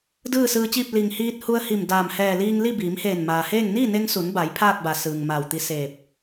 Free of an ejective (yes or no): yes